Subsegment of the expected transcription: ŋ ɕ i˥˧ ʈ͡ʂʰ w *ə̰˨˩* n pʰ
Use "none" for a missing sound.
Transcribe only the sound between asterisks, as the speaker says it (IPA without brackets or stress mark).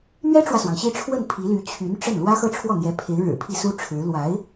ə˥˩